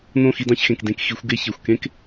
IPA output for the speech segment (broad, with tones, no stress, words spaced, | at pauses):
nõ˦˨xi˧dɑ̃˧çxẽ˨k dẽ˧kxi˨˦xʷ ɡe˦çe˨xʷ kẽ˦k